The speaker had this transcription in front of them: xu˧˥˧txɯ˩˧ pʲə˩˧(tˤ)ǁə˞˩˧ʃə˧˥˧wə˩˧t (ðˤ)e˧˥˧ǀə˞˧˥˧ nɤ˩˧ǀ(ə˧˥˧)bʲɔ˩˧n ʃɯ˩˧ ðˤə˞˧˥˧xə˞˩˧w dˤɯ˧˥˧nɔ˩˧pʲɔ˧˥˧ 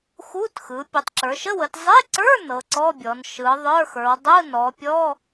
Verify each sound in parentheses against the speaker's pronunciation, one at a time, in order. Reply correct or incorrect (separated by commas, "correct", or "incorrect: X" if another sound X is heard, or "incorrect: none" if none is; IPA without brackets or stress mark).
correct, incorrect: zˤ, incorrect: ɔ˧˥˧